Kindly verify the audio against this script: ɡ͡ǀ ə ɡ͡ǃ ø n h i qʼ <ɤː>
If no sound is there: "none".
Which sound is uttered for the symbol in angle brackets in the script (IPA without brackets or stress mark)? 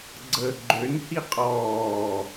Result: ɔː